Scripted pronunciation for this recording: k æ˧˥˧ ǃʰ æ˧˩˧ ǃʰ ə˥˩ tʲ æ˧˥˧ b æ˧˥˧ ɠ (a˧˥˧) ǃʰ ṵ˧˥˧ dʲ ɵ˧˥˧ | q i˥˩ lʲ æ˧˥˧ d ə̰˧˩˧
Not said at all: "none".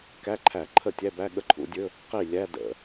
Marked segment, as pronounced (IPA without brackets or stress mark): ə˧˥˧